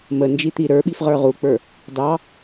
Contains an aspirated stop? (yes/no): no